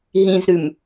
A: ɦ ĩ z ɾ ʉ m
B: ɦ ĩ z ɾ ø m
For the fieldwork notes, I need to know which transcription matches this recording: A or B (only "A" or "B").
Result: A